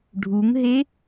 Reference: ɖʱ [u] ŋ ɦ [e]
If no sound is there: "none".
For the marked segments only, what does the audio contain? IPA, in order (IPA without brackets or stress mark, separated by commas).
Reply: u, e